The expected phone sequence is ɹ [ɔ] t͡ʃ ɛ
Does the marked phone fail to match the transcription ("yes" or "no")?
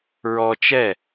no